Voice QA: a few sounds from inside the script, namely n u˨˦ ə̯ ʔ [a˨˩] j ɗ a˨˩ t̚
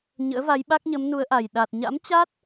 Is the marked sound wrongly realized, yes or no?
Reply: no